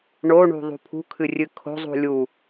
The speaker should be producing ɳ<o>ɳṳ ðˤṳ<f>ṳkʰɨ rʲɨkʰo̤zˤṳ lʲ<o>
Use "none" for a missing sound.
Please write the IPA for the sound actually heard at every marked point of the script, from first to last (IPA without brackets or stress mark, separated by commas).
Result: o, pʰ, u